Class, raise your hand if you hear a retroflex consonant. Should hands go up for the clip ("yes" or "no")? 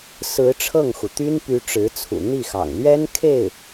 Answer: yes